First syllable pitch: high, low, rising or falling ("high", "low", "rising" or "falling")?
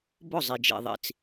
falling